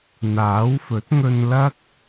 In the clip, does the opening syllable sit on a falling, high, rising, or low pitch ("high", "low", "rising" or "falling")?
rising